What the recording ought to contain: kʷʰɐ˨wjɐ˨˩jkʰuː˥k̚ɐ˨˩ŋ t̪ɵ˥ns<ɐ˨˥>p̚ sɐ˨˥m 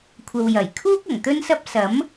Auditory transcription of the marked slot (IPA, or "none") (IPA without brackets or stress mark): ɐ˥